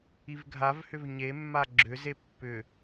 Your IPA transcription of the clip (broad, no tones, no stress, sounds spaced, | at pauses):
i v ɡʱ a v h ʏ v ɲ e mː a ɡ͡ǁ ʏ z e pː ʏ